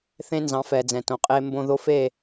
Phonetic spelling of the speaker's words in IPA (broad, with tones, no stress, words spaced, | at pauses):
θẽ˦nzɑ̃˨˦fɛ˨d͡zɛ̃˨ tõ˨qʼe˦ mbõ˦ðo˦fe˦˨